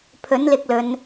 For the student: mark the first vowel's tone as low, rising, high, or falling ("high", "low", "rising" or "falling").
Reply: rising